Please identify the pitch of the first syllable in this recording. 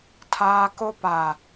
high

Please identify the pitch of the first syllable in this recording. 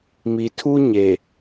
low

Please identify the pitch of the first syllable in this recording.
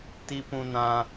high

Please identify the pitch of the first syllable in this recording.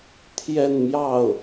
falling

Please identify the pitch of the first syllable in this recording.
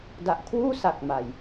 low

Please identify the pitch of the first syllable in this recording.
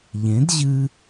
rising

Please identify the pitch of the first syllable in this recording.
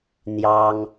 high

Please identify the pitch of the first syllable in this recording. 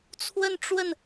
falling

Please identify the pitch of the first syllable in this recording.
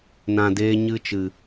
low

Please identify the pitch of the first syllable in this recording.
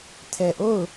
low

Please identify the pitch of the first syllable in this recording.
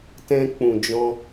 high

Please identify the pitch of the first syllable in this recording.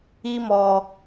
high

